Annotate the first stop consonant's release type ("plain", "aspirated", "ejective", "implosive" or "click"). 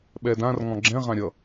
implosive